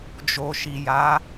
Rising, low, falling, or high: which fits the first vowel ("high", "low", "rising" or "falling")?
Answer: low